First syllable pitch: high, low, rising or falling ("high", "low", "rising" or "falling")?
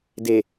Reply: low